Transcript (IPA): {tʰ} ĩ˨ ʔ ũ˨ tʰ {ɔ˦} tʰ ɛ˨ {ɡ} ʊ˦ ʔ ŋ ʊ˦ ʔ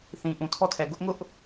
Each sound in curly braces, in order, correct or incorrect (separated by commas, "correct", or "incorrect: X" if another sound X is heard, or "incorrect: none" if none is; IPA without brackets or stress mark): incorrect: θ, correct, correct